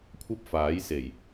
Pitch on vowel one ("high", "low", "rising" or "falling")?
high